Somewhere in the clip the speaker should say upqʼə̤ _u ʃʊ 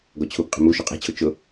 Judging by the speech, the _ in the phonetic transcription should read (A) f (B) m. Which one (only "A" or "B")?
B